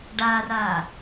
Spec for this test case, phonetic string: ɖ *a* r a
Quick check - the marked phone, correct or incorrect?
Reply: correct